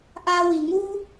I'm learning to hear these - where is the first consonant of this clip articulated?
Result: throat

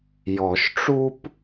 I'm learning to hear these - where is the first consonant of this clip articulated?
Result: palate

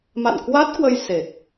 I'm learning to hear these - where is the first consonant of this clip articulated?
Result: lips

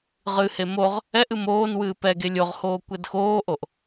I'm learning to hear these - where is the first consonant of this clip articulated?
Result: uvula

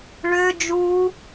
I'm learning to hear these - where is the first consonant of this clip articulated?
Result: retroflex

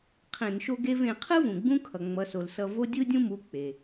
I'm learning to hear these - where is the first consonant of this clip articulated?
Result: uvula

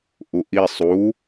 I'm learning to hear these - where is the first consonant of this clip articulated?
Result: throat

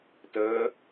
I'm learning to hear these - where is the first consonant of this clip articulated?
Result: tongue tip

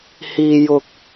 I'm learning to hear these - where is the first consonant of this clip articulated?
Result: throat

